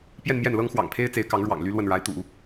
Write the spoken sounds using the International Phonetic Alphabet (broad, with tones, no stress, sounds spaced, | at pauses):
p j ɛ˥˧ n m j ɛ˥˩ n l ɤ˥ ŋ x w ɑ̰˨˩ ŋ pʰ e˥ ɪ̯ t͡s e˧˥ ɪ̯ k ɑ˧˥ ŋ ɻ w ɑ̰˨˩ ŋ l y˥ l w ə˥˩ n ɻ a˧˥ ɪ̯ t̪ ṵ˨˩˦